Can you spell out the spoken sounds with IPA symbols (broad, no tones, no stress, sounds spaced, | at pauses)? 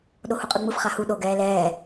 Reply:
ɗ o h u qʼ ɯ ŋ͡m ɯ f χ a h u ɗ o ɡ ɛː l ɛː